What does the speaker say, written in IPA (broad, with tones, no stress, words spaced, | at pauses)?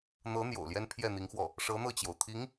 n̪ɤ˧˥n̪jo̰˨˩ʊ̯ljɛ˥n pʰjɛ˥˩n̪i˧˥ŋxwɔ˥˩ | ʂɤ˧˥ n̪ɤ˥˩t͡ɕjo˩ʊ̯ t̪ʰi˧˥ŋ